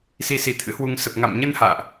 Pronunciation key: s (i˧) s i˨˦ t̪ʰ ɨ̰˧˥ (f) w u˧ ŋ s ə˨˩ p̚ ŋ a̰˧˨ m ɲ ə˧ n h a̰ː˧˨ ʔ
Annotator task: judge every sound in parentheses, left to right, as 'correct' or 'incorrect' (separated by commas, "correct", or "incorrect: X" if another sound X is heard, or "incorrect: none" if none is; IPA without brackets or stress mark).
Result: correct, incorrect: h